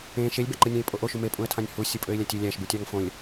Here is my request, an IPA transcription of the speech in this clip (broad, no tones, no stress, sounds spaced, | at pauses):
ẽ ʃ e lʲ b æ ǃ ɯ nʲ æ̃ ɪ̯ pʼ o ʔ o ʃ u m e pʼ ũ ə̯ tʰ ɑ̃ nʲ h u sʲ ɯ pʼ ø ɪ̯ lʲ æ tʲ ø lʲ æ ʃ b u tʲ ɑ ŋ f õ lʲ